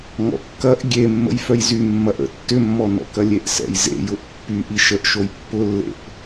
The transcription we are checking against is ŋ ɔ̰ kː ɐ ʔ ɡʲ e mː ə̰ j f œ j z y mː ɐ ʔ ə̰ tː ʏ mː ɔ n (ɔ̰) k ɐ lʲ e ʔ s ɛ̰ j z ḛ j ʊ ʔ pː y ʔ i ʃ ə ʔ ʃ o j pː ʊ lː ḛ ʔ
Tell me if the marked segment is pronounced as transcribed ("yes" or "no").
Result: yes